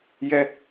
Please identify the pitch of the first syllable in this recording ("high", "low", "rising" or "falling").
high